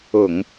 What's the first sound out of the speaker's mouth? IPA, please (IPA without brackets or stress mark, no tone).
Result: ʊ